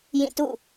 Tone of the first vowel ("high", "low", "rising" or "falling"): falling